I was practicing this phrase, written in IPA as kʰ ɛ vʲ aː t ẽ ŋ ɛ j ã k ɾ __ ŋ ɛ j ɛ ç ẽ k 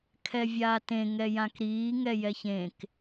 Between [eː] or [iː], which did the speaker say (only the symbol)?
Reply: iː